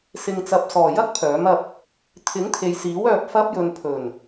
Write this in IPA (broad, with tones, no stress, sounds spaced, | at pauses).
s ɪ˨ ŋ t͡s ɐ˨ p̚ s ɔː˨˩ j ɐ˥ k̚ pʰ œː˨˥ m ɐ˧ p̚ | t̪ʰ ɪ˨˥ ŋ t̪ʰ e˨ j s iː˨˥ w œː˧ p̚ f ɐ˥ p̚ j ɵ˧ n pʰ ɵ˨˩ n